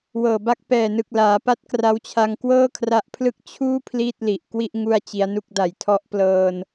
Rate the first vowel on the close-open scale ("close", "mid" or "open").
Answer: mid